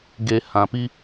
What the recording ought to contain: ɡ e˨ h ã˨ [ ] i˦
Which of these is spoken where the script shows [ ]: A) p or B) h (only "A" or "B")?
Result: A